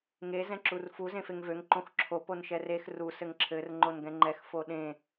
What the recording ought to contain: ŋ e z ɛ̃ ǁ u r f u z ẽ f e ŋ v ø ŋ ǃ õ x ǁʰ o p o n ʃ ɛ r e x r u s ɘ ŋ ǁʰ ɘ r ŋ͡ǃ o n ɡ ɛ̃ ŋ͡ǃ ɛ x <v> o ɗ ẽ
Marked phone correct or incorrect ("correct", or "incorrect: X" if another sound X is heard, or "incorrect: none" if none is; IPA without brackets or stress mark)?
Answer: incorrect: f